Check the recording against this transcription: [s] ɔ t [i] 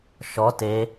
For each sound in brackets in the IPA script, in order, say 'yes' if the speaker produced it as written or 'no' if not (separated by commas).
no, no